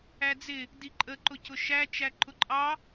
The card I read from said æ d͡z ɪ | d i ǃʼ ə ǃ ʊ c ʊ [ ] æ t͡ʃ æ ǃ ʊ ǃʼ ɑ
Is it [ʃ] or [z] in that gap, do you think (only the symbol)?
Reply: ʃ